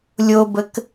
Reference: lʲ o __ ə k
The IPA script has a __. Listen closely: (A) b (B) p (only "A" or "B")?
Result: A